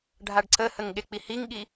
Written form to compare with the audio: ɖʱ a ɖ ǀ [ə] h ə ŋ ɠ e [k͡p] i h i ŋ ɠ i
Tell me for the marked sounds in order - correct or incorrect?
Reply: correct, correct

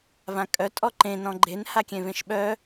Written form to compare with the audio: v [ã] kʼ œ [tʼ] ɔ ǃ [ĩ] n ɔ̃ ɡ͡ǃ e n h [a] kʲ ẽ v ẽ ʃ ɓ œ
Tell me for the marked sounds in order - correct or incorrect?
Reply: correct, correct, incorrect: ẽ, correct

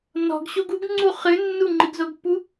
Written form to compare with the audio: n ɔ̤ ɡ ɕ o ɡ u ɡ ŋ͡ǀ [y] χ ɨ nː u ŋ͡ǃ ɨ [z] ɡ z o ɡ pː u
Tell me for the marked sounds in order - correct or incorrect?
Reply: incorrect: u, incorrect: none

